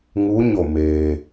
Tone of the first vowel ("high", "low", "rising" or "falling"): rising